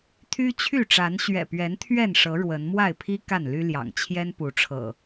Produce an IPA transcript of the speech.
t̪ʰ y˦ t͡ɕʰ y˥˨ ʈ͡ʂ a˨˦ n ɕ ɥ ɛ̰˨˩ p ɥ ɛ˨˦ n t̪ʰ ɥ ɛ˥˨ n ʂ ɤ˨˦ ɻ w ə˨˦ n m w a˥˨ ɪ̯ pʰ i˦ k a˥˨ n l y˦ l j ɑ̰˨˩ ŋ t͡ɕʰ j ɛ˦ n p u˨˦ ʈ͡ʂʰ ɤ̰˨˩

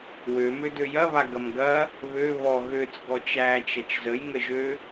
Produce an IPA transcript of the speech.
w ø m ø d ø j ɐ β a ɡ ɐ m ɡ ɐ | β ø β ɔ ɣ ø t͡s ɡ ɔ t͡ʃ æ t͡ʃ ɐ t͡ʃ z ə j ŋ ə ʒ ø

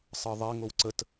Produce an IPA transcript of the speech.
sˤ ɯ ðˤ e ŋ o w ǀ ə t

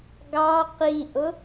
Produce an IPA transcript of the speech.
ɡ ɑ q i ʔ ʊ

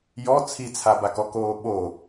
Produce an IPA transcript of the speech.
j ɔ t͡sʰ i t͡sʰ a b a k ɔ k oː ɓ o

